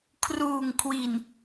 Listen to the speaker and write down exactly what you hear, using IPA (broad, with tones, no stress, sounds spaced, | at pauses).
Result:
kʰ r uː˨˩ ŋ kʰ w i˨˩ n